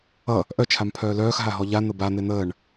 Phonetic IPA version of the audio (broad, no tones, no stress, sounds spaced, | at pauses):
ʌ | ʔ œ t͡ʃʰ a m pʰ œː l œː x ɦ a ɦ ɔ ʎ a n̪ ə b a n̪ e n̪ əː ɳ